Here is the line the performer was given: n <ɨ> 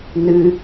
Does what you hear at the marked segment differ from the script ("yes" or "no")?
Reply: no